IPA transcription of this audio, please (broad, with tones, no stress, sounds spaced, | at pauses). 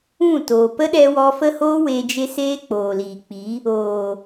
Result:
ũ˦˨ t oː˨ p ə˦ ɗ ɛ˧ w ɔ˧ f ə˦ h oː˦ w e˧ d͡ʒ e˦ s eː˦ k͡p oː˨ l iː˨ k͡p i˨˦ | oː˨